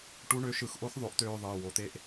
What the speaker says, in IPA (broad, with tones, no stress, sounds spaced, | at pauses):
ʈ u˦ ɳ ø˦ ʃ ɯ˧ x ʔ o˦ x ðˤ o˧ ʔ t̪ øː˧ ðˤ ɯː˨ w o˨ t̪ e˧ ʔ